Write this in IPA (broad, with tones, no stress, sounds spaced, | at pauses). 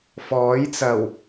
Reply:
f ɔː˨˥ j t͡s ɐ˨˩ w